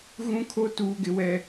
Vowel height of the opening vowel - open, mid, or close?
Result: close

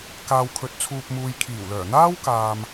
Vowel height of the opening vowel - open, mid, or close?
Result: open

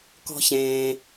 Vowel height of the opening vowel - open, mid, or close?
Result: mid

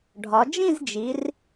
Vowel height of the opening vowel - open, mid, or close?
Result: open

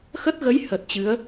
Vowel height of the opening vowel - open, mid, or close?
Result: mid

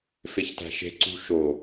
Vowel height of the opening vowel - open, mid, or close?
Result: mid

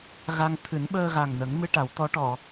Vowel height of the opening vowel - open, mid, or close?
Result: open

